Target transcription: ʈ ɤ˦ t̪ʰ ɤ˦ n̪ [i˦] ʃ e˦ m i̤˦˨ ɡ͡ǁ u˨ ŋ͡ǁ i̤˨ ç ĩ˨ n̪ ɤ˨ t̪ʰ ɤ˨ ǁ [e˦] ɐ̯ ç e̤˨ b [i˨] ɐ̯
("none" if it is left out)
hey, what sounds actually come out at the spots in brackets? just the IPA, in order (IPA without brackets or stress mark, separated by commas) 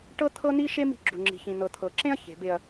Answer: i˦, ẽ˦, e˨